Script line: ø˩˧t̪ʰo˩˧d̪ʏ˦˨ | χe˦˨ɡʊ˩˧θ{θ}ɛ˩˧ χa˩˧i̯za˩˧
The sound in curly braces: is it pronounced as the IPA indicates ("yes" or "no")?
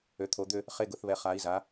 no